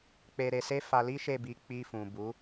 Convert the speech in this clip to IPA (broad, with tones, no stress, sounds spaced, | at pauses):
k͡p e˧ ɾ e˧ s e˦ f a˧ l i˦ ʃ e˦˨ b i˧ k͡p i˧ f ũ˨ b u˨˦